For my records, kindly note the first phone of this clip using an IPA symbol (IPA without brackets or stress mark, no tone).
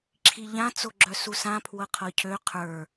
ǁʰ